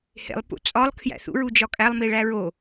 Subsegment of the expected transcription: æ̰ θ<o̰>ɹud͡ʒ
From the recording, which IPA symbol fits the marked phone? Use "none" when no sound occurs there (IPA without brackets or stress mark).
ṵ